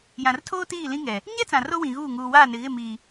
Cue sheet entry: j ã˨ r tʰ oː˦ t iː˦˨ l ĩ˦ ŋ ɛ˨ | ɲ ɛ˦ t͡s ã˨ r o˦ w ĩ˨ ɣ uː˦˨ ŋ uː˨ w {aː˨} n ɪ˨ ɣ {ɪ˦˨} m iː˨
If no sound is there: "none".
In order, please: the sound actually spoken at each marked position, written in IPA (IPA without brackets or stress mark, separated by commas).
aː˦˨, ɪ˦˨